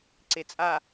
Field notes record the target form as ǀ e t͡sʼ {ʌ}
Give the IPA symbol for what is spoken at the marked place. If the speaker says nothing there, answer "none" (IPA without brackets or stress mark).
a